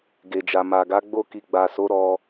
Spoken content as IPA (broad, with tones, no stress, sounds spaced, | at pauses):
ɡ e˨ d͡ʒ a˨ m a˨ ɡ a˨˦ ɡ͡b o˧ k i˨ ɡ͡b a˨ s o˨˦ ɾ ɔ˧